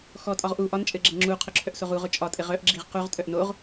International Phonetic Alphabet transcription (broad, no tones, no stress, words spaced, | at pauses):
xɔtʼɒʁ ʔu ʔɒnt͡ʃʼɘɡ͡ǁɘ ŋ͡ǁuqʰʊǁʰœʔsoʁ uʁʊ t͡ʃʼɒtʼɘʁ œʔɡ͡ǁiʁ quʁtʼœʔ noʁ